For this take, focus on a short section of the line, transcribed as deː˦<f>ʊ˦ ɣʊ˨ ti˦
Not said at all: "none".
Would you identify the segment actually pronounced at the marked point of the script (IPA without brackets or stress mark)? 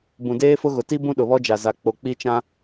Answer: f